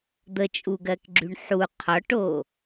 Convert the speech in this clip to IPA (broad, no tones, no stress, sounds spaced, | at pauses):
d̪ ə t͡ʃʼ u ɡ ɜ k ɡ͡ǁ y ɳ ħ u qʰ ɔ ʈ o